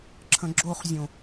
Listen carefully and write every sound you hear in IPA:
ǁʰə̃ɡ͡ǁoχzʲõ

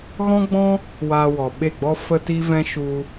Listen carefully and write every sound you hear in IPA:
ɣɔ̃˦ɡ͡bɔ̃˦ | waː˧wɔ˨ɓe˦˨ɡ͡bɔ˦ fə˦ti˦vɛ̃˦ ʃu˧

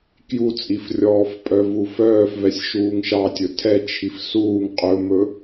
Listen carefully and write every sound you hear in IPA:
kjut͡sʼifrʲɔːfpʼœv ufœːfvɛsʲ ʃuːŋʃɑtʲɵ tʰɛt͡ʃʰif suːŋ qʼɵmɵ

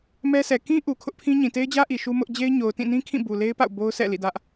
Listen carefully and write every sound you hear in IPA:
mɛ˦sʰɛ˨ kĩ˦ ʔu˨kʰʊ˦ʔpʰĩ˦ɲĩ˨ te˦ɪ̯d͡ʑä˦ ʔi˨ʃu˦ mʊ˦ʔ d͡ʑe˦ɪ̯ɲo˨ʊ̯ tĩ˦˨nĩ˦kʰĩ˦˨ bu˨le˦ɪ̯pa̰˦˨ʊ̯ bo˦ʊ̯ sʰɛ̰˦˨ lḭ˦˨dä˦ʔ

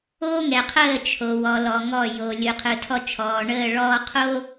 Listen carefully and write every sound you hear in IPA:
oː˦ ŋɛ˨qʰəː˦˨ t͡ʃʰo˨wɔ˨lɔ˨ ŋɔ˦˨jo˨ lʲɯ˨qʰɯ˨tʰɔ˦t͡ʃʰɔː˨ ɳəː˦˨ɭɔː˦ qʰo˦

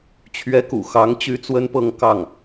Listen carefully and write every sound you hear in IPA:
t͡ɕʰɥɛ˧˥kṵ˨˩ xɑ˧˥ŋt͡ɕy˥ t͡swə˥npɤ˥˧ŋ kɑ˥˩ŋ

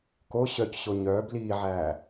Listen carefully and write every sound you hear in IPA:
ko ɕœcɕo ɲœːb liːʕæː

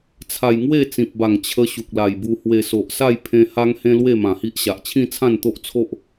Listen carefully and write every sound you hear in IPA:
t͡sʰa˧j ŋwe˥˧t͡sĩ˨p̚ba˨˩ŋ t͡ɕʰə˦ ɕu˨k̚la˨˩jbu˧hwe˧ so˨ʔsa˥˧jpʰẽ˧ ha˦ŋhẽ˦lwe˥˧ mã˨˩hi˦ʔɕa˨ʔ t͡ɕʰĩ˥˧t͡sʰã˥˧nt̪o˦ʔt͡sʰo˦ʔ

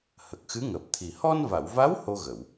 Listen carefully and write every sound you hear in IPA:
hə˨˩k̚xɨ˧˥ŋəː˨˩p̚t̪ʰi˨˩ hɔ˧nva˨˩˨wva˧˥w ho˧ɣə˨˩˨w

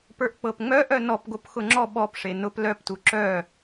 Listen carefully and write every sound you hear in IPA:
pə˞ʔk͡pɤpŋ͡mœ ʔœnɔpɡop xʊŋ͡ǁɔ ɓɔpʂe nʊp lœptu ǁœ

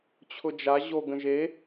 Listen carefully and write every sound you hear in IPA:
t͡ɕʰʊd͡ʒa ʑo ɡə̃ʒe

